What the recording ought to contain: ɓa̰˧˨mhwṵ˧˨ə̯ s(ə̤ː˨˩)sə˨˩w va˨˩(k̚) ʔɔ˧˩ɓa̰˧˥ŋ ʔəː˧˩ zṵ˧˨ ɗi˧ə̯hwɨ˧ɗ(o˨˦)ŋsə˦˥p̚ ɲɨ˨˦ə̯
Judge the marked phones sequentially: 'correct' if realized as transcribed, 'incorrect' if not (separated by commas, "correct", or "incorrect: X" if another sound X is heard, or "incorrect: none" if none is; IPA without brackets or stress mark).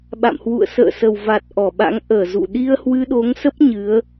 incorrect: ə̰ː˧˨, incorrect: t̚, correct